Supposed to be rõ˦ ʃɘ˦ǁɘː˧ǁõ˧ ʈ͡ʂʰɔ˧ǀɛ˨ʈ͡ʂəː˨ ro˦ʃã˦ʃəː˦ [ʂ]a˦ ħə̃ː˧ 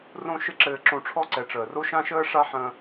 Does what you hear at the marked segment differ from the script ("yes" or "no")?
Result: no